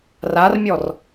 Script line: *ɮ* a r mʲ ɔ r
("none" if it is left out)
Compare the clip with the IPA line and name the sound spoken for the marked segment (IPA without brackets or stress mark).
r